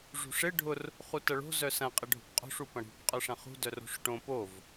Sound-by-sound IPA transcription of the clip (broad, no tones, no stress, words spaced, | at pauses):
ʐṳʂɪ ɖʱʊr | χutɐɭo̤ zœsɐ̃ qʼɪɖʱo̤pqʼo̤ʂ upɐ̃ɽṳp qʼœʂɐ̃χṳ dœro̤ʂʈõ pov